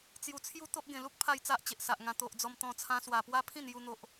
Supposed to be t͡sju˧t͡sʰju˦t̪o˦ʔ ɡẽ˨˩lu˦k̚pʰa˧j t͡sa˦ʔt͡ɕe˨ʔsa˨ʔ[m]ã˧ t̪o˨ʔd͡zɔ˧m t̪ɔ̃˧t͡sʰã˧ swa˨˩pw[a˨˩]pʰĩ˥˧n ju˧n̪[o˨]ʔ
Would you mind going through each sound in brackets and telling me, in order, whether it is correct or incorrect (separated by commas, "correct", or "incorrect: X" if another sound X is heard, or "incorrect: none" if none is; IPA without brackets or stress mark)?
incorrect: ŋ, incorrect: a˦, correct